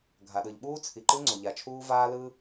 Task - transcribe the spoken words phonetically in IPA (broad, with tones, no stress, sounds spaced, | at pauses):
ɡʱ a˩ ɗ ɯ˩ ʎ ɓ uː˥ t͡sʰ i˩ ǃ ɯ˥ ŋ͡ǀ o˩ ʎ a˩ t͡ʃʰ uː˥ v aː˥ l ɯ˥